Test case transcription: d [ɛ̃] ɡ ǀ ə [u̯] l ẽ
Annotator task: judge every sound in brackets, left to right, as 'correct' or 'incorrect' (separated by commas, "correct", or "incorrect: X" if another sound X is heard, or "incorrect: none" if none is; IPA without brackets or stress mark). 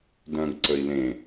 incorrect: œ̃, incorrect: i̯